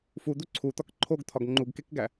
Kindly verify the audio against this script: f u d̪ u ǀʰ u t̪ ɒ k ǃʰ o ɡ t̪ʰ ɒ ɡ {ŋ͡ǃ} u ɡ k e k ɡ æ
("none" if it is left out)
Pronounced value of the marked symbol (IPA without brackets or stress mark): ŋ͡ǃ